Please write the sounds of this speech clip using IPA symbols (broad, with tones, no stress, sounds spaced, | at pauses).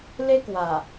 l e˦ k w a˨˩